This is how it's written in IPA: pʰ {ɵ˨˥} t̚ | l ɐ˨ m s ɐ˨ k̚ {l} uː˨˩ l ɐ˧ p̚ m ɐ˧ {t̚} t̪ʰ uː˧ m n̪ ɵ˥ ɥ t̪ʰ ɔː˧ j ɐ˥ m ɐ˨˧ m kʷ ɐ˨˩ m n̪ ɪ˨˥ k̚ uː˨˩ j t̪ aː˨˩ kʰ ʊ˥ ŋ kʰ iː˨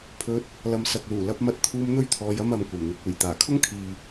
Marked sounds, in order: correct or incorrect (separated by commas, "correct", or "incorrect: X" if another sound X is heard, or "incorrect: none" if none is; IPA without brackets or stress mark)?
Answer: incorrect: ɵ˧, correct, correct